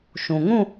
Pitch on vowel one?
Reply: low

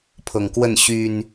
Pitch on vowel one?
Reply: low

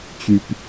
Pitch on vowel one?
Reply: low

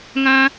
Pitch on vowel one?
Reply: high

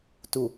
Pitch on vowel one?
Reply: low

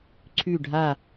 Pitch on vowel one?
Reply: falling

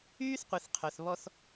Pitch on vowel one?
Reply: high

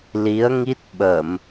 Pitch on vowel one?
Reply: rising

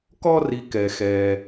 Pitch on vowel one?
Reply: high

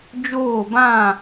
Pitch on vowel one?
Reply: falling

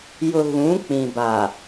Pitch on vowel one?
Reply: low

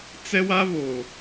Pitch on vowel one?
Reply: high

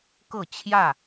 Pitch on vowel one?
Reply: falling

